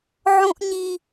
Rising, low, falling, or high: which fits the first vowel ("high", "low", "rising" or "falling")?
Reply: high